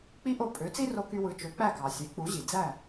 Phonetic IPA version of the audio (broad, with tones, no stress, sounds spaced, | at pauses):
k͡p i˥ ʔ o˥˩ pʼ ø˩˥ t͡s i˥ r o˧ k y˧ w ɯ˩˥ t͡ʃ ø˩˥ k͡p æ˥˩ k ɑ˩ sʲ e˩˥ k͡p u˩˥ ʑ i˩ d͡z æ˥˩